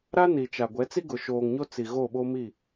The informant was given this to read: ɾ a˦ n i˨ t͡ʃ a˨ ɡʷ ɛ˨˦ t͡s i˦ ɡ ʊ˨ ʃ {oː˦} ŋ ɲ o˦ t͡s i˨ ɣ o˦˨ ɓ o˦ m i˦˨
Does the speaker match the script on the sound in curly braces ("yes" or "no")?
no